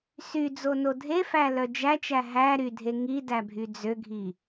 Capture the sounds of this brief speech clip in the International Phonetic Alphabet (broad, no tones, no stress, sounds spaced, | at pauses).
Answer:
s y d͡z o n o dʱ e f æ l œ d͡ʒ æ t͡ʃ æ ɦ æ ɾ y dʱ e ŋ i d æ bʱ y d͡z ø ɡʱ i